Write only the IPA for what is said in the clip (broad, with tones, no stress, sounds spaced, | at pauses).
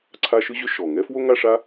ǀʰ a˦ ʃ ɯ˥ ʑ ʏ˦ ʃ ɔ˩ ŋ ɛ˥ f w o˥ ŋ a˦ ʂ a˦